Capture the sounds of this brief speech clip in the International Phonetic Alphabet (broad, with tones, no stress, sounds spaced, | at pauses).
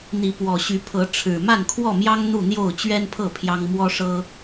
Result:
n̪ i˨˦ p w ɔ˨˩ ɕ y˨˦ pʰ ɤ˨˦ ʈ͡ʂʰ ɻ̩˨˩ m a˥˨ n kʰ w ɔ˥˨ m j ɑ˦ ŋ n̪ u˥˨ n̪ j o˥˨ ʊ̯ t͡ɕ ɥ ɛ˦ n pʰ ɤ˥˨ pʰ j ɑ˦ ŋ m w ɔ˦ ʂ ɤ˦